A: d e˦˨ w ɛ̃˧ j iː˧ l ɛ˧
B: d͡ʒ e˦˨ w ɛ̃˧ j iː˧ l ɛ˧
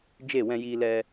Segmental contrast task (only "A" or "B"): B